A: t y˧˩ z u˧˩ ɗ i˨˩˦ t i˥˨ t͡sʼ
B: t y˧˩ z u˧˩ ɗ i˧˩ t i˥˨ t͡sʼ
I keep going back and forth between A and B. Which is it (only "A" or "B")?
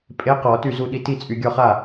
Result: B